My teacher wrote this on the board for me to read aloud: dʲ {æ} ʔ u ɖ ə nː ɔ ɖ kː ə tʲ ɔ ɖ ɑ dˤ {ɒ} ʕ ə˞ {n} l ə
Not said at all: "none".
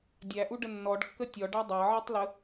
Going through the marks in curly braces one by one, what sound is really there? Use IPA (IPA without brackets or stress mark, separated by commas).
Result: æ, ɑ, tˤ